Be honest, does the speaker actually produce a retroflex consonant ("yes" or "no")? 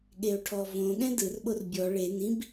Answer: yes